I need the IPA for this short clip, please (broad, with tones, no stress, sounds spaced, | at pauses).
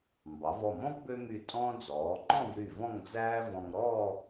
m b ɑ˩˧ v ɔ˧˩ m ɔ̃˥ v b ø˥ m y˧˩ tʼ ɔ̃ː˥ d͡z ɔː˩˧ ŋ͡ǃ ɔ̃˥˧ v ɾ y˧˩ v ɔ̃˥˧ ŋ d͡z æː˥ v ɔ̃˧ ŋ ɾ ɔː˥˧